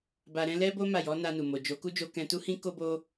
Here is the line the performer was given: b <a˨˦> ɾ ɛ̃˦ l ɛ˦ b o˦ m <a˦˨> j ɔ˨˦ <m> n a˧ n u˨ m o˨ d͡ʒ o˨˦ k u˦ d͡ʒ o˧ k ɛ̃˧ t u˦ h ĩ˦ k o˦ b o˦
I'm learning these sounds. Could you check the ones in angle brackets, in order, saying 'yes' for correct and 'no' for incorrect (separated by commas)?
no, yes, no